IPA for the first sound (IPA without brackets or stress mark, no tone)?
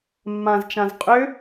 mː